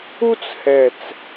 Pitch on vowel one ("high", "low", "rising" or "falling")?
high